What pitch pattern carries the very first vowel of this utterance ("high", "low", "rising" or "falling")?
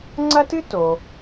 high